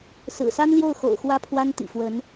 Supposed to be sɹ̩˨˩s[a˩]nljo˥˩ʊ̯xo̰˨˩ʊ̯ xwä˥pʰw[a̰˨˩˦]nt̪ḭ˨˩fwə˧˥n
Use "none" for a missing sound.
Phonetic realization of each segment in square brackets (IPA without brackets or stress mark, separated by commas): a˥, a˥